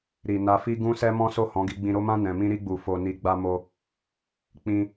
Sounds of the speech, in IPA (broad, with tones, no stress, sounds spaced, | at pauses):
ɾ i˨ n a˧ f i˦ ɡ ũ˧ s ɛ˧ m ɔ̃˦ s o˦˨ h ɔ̃˨˦ ɡ i˧ ɡ͡b ĩ˨ ɾ o˧ m ã˧ n ɛ̃˨ m ĩ˧ ɾ i˧ ɡ͡b u˨ f o˨ n i˨ ɡ͡b a˧ m o˧ | k͡p ĩ˦